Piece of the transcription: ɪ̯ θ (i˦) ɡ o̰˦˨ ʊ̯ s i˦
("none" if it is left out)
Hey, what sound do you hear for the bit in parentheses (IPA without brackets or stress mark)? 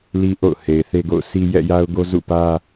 e˦